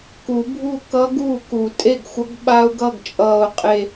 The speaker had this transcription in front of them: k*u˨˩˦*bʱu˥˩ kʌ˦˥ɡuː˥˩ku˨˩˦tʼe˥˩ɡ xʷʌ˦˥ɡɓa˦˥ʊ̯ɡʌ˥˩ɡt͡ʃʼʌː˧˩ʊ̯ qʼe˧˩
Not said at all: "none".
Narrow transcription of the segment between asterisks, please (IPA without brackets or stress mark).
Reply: u˨˩˦